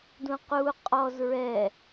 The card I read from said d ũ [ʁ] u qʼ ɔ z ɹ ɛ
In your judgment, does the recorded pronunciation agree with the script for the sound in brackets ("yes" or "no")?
no